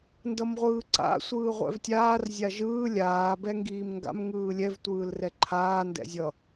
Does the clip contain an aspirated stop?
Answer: yes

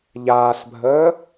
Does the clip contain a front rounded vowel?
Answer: no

